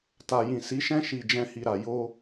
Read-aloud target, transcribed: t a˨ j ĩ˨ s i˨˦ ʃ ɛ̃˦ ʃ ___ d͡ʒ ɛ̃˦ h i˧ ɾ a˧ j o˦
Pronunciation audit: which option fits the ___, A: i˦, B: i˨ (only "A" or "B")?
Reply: A